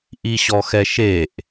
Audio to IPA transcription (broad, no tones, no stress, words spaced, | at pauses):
ʔiɕɔxɛʃeʔ